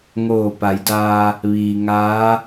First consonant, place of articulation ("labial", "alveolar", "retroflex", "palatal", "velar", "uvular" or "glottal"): velar